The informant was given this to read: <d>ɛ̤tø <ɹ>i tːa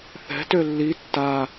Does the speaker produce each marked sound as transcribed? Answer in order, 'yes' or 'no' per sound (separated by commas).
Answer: no, no